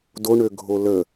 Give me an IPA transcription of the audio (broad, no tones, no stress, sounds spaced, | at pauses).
d o ɳ ø ɡʱ o l ə